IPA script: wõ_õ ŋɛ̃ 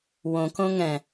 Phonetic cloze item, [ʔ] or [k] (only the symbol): k